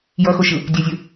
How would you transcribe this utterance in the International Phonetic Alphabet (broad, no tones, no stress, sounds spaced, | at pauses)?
j ʌ x o ʃ ɯ | dʲ ɛ zʲ ɯ